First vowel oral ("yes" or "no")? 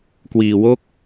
yes